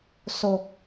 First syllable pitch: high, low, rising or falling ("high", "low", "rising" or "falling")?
low